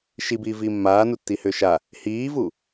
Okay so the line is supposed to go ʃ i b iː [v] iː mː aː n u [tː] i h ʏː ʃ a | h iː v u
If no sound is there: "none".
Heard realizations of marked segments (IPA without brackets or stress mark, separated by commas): v, tː